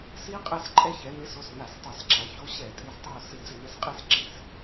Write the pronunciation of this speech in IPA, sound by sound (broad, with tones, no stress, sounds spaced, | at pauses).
s i˦ qʼ ɛ˦˨ s ǃʼ ɛ˦ ç ɛ˩˧ n ɪ˨˥ s o˩˧˩ s n a˧˩˧ s tˤ a˧˩˧ s ǁ a˩˧ ç o˦ ɕ ɛ˧˩˧ tʼ i˨˥ s tˤ o˦˨ s ɪ˧˩˧ d͡z ɪ˧˩˧ n ɛ˨˥ s qʼ e˦ s ǁ i˧˩˧ s